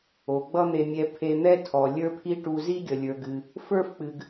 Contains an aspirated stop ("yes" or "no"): yes